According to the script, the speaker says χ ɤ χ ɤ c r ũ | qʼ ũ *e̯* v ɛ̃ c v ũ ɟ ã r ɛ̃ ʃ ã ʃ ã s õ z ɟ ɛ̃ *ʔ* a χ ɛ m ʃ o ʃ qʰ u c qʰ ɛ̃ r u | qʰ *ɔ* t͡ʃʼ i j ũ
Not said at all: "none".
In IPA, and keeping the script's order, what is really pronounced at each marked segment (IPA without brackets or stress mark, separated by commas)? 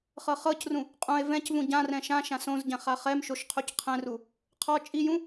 e̯, χ, ɔ